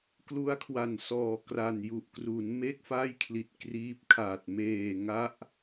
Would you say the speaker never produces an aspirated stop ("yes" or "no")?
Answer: no